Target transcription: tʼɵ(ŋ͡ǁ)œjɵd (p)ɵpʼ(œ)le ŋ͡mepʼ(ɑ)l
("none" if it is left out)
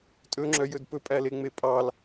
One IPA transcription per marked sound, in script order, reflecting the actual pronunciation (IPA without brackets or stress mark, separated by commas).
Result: ŋ͡ǁ, p, æ, ɑ